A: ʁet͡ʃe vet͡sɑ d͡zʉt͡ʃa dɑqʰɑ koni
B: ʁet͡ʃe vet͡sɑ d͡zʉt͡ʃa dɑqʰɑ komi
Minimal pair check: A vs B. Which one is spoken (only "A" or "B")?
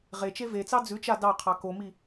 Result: B